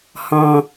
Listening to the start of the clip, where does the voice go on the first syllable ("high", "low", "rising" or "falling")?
low